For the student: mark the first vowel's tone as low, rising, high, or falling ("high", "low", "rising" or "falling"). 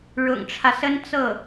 low